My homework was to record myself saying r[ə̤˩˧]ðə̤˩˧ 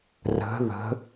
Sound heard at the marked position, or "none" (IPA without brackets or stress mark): ə̤˩˧